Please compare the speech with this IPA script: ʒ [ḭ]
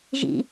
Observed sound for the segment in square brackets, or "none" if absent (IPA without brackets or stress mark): ḭ